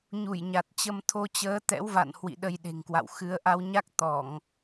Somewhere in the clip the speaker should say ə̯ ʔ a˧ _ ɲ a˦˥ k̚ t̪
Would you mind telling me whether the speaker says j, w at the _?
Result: w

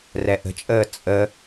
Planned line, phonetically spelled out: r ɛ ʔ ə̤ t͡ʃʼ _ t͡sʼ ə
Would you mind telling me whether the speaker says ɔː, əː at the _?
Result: əː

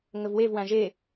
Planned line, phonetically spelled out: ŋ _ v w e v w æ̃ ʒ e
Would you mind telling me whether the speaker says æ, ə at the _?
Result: ə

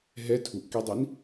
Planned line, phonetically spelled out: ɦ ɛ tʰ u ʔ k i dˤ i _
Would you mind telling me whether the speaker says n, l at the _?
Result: n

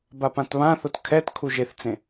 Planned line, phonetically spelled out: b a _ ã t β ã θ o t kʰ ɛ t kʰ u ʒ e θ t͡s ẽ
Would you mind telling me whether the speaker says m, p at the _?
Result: p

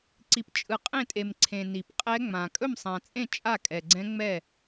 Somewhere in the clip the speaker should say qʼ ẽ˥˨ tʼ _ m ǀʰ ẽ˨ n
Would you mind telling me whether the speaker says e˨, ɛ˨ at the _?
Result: e˨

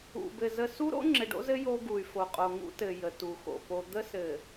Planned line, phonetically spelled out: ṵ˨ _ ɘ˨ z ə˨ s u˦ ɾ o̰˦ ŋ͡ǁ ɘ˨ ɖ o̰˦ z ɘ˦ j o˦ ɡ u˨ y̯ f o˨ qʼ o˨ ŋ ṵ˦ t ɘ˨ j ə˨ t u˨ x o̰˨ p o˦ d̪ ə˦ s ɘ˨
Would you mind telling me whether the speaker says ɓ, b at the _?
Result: b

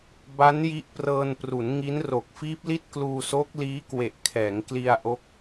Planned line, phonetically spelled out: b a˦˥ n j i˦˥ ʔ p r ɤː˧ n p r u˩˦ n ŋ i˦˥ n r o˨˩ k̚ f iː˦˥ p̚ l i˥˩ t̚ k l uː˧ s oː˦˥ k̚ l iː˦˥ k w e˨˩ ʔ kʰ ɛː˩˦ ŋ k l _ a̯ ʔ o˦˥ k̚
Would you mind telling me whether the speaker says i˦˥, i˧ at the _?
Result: i˧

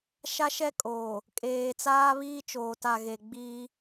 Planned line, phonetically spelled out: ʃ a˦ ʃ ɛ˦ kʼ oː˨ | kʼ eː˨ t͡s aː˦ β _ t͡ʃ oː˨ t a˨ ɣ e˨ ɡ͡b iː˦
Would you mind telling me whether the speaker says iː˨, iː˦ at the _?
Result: iː˦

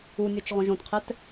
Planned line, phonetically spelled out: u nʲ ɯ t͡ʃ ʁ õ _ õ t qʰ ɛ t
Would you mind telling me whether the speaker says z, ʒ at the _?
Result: ʒ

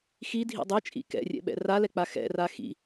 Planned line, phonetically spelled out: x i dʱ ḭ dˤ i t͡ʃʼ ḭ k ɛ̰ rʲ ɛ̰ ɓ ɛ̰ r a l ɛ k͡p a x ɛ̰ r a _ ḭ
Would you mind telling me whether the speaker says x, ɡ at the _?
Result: x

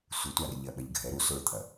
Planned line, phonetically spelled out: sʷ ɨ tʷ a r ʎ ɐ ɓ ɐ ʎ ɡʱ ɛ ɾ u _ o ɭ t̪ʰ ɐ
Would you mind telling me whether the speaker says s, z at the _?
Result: s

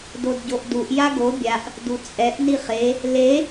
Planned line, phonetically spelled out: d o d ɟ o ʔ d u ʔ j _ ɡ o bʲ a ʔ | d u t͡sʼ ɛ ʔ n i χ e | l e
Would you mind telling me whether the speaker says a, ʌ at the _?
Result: a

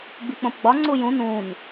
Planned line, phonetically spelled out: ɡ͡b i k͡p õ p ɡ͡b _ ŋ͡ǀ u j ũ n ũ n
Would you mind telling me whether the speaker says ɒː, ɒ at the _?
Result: ɒ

